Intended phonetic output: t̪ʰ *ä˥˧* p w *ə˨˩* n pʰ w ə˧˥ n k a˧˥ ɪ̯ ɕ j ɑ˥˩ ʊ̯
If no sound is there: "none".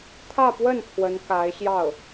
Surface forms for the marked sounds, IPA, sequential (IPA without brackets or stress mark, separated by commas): ä˥˧, ə˥˩